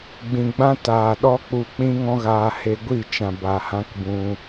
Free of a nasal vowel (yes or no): no